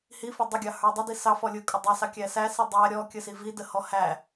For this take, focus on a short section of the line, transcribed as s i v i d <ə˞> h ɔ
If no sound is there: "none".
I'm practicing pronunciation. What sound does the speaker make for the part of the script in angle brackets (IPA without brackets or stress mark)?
ə